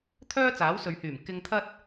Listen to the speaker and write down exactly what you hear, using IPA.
t̪ʰ œː˥ t͡s aː˨˥ w s ɵ˨˧ ɥ h yː˨˩ m k ɪ˧ ŋ t̪ʰ ɐ˥ t̚

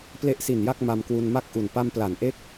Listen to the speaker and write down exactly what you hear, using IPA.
p l e˦˥ ʔ s i˨˩ n j a˥˩ k̚ m a˧ m k w u˧ n m a˥˩ k̚ ʔ u˨˩ n p a˧ m p l a˩˦ n ʔ e˦˥ k̚

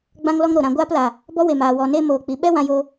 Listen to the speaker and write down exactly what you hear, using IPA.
ɡ͡b ã˦ ŋ l ɔ˦ ŋ ɾ o˨ ɾ ã˨ ɡʷ aː˧ p l aː˨ | b ɔ˦ w e˨ m aː˨ w ɔ˨ n e˧ m oː˨ k͡p i˨ ɓ ɛ˦ w ã˧ j oː˧

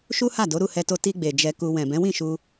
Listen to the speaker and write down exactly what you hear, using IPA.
ʃ u˦ h a˦˨ d o˨˦ ɾ u˦˨ h ɛ˧ t o˧ t i˧ ɡ͡b e˨ d͡ʒ ɛ˧ k u˧ w ɛ̃˨ b ɛ̃˨˦ w ĩ˦˨ ʃ u˧

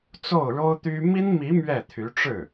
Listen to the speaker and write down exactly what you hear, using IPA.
t͡s o˥˩ ʊ̯ ɻ o˥ ʊ̯ t̪ y˥ m i˥ n m i˧˥ m ɥ ɛ˥˩ t̪ʰ y˧˥ ʈ͡ʂ ɻ̩˥˩

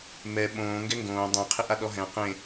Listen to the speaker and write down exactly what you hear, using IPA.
m ɛ ɓ õː ŋ ɡ ɛ ŋ ɡ õː dˤ ɛ̃ qʰ ɪ ʔ a ɗ ɔ ɦ ɛ̃ q ẽ

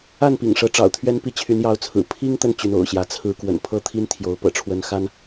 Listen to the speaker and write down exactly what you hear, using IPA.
a˥˨ n p ḭ˨˩ ŋ ʂ ɤ˨˦ ʈ͡ʂ ɑ̰˨˩ ʊ̯ t̪ʰ ɥ ɛ˦ n p i˦ t͡ɕʰ y˨˦ n j ɑ˨˦ ʊ̯ t͡sʰ ɹ̩˨˩ pʰ i˦ ŋ t̪ ə˥˨ n t͡ɕ y˨˦ n o̰˨˩ ʊ̯ ɕ j ä˨˦ t͡sʰ ɹ̩˨˦ k w ə̰˨˩ n pʰ ɤ˥˨ t̪ʰ i˦ n t̪ʰ j o˨˦ ʊ̯ p ɤ̰˨˩ ʈ͡ʂʰ w ə˦ n x a˦ n

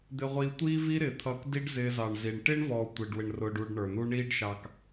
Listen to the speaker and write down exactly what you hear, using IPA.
d̪ ɪ˧ ʁʷ iː˧ tʷ iː˦ v i˦ ɾ ɪ˨ t̪ʰ ʌː˧ k d i˦ ɖ z ɪː˧ z ɑ˨ ɳ z i˨ ɳ ʈ ɪː˦ ɳ v ɔː˨ tʷ ɪː˨ ɖ w ɪ˨ ɳ r ʊː˨ ɖ u˨ ɖ ɳ ə˞˨ n u˦ ɳ iː˦ ɖ ʃ ɑ˧ k

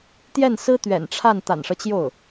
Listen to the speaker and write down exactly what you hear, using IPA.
t̪ j ɛ˥˩ n s ɹ̩˥ t̪ ɥ ɛ̰˨˩ n ʈ͡ʂʰ a˥˩ n t̪ a̰˨˩ n ʂ ɤ˦ t͡ɕ j o˥˩ ʊ̯

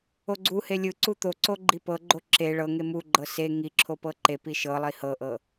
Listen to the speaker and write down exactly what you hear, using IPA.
o ɡ͡ǀ u h e lʲ ɯ ǀ u t̪ o ǀ o ɡ͡ǃ i p ɤ ɡ͡ǃ o ǁ e ɭ ɤ ŋ e m u ɡ͡ǃ ɤ s e ŋ i ǁʰ o p ɤ ǃ e p i ʃ ɤ lˠ i h ɤ ʔ ɤ

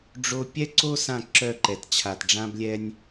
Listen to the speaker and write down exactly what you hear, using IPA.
ɖ͡ʐ o˦ pʲ ɛ˦ ǀ o˦ s ã˦˨ ǁ œ˦˨ ǃ ɛ˨ t t͡ɕʰ a˨ t ɖ͡ʐ ã˦ b lʲ ɛ˦ nʲ

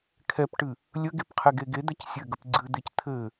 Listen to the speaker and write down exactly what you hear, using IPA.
kʰ ɛ p ʈ ɨ | lʲ ə ɡ e p qʰ ɛ ɡ e ɡ e d̪ ɛ c sʲ ɘ ɡ ə p ɡ͡ǀ ɨ d̪ e c t̪ʰ ɘ

